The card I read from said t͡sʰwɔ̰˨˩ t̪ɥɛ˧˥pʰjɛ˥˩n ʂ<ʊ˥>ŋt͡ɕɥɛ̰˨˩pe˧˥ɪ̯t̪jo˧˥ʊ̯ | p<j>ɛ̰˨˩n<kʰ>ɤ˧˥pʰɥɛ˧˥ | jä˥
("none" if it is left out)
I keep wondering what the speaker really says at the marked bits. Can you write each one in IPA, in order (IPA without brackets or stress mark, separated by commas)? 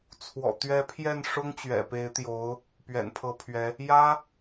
ʊ˥, ɥ, pʰ